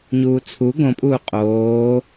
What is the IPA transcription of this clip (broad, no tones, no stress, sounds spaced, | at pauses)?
ɲ uː t͡sʰ u ɡ õ pʼ uː qʼ oː